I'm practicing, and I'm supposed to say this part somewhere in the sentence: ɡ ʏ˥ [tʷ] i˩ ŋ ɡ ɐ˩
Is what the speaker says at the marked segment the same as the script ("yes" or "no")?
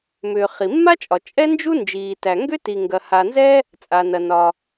no